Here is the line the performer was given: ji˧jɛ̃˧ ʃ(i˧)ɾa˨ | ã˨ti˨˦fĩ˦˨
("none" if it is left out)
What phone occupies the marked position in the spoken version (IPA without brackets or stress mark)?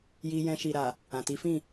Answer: i˨